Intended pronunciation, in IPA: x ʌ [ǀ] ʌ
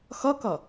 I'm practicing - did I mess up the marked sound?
yes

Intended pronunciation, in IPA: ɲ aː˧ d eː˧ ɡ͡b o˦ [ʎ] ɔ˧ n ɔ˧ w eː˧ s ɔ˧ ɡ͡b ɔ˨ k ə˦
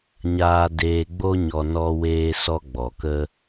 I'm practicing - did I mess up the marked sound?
yes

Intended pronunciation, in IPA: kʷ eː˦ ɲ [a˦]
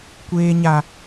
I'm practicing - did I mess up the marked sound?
no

